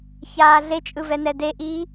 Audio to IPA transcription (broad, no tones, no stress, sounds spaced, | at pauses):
ç aː ɮ e t͡ʃʼ ɯ v ɛ n ɛ d e ʔ iː